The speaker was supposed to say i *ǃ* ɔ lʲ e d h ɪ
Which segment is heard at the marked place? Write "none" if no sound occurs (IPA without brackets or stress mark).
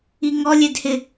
ŋ